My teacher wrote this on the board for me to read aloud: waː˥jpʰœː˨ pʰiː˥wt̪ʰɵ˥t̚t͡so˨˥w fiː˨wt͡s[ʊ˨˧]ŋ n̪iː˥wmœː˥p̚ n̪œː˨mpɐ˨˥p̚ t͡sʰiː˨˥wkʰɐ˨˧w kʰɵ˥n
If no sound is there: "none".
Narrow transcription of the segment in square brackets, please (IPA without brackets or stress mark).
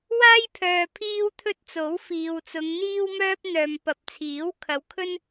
ʊ˨˧